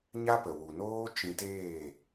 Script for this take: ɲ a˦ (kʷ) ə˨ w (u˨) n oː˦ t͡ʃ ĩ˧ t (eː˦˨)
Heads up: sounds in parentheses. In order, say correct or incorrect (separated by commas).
incorrect, correct, correct